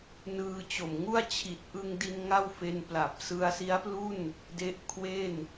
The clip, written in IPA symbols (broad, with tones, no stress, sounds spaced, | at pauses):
n ɯː˧ t͡ɕ o˨˩ m ŋ u˥˩ a̯ t͡ɕʰ i˨˩ t̚ ʔ ɯ˧ ŋ d i˧ n ŋ a˥˩ w f e˧ n p l a˨˩ p̚ s ɯ˧ a̯ s i˦˥ a̯ p l u˥˩ n | d e˦˥ ʔ kʰ w e˥˩ n